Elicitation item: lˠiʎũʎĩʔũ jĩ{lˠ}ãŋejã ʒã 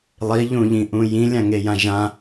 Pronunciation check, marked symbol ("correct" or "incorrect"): incorrect